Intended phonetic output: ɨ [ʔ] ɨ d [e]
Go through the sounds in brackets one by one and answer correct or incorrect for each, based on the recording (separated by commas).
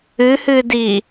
incorrect, incorrect